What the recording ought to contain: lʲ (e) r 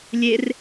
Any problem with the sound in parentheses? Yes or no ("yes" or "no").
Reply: no